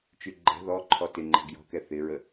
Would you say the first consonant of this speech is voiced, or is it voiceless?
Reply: voiceless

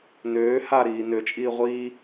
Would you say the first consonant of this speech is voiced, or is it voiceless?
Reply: voiced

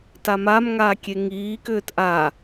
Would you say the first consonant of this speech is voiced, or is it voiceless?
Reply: voiceless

